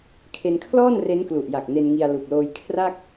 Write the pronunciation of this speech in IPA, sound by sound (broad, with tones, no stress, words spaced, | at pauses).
kʰe˧nkʰlɔː˥˩n re˦˥nklu˨˩ʔja˨˩k̚ ne˧nŋi˧a̯ lu˨˩k̚loː˧j kʰra˥˩k̚